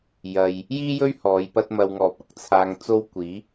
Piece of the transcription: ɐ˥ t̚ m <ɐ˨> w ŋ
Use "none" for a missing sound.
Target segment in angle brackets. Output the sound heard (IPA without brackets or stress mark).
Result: ɐ˧